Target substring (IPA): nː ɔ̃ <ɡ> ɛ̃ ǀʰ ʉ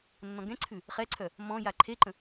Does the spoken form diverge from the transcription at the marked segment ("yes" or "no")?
no